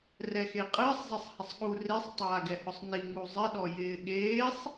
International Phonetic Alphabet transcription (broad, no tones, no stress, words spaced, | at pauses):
rɛxeqʼɪːsˤ zˤɛsˤhɪsˤɠu resˤ tˤaːɡɛhʊsˤni ŋuzˤɪ ɗɔjɪːɠeːsˤ